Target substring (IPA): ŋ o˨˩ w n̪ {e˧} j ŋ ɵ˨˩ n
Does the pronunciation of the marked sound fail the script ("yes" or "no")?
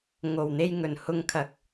no